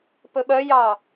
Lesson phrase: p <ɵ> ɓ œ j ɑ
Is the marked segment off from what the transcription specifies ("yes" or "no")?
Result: no